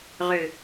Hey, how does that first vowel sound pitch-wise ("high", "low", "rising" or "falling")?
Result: low